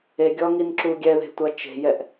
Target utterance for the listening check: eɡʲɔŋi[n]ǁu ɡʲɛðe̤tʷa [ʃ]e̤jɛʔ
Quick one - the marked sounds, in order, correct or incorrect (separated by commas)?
correct, incorrect